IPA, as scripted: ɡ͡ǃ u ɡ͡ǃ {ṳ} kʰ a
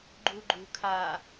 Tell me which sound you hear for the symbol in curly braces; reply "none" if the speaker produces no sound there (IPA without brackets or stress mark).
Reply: ṳ